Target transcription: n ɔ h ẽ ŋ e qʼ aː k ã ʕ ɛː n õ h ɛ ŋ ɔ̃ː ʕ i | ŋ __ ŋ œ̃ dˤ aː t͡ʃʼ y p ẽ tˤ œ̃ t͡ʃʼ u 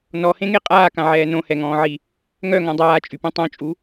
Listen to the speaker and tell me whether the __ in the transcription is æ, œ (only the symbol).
œ